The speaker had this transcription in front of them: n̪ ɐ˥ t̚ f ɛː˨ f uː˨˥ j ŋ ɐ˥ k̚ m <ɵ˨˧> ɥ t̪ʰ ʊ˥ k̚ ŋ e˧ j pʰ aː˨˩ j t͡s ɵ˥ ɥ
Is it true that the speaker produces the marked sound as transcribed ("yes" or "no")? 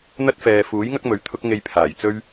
yes